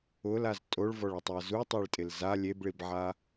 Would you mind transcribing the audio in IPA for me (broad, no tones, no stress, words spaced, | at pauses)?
ʊlaz tʼoɭvɔɭʊtˤʊɐ̯ zutˤaɭtʼɪl za lʲebɭibʕa